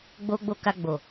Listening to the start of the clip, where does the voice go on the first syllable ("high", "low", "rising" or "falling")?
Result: high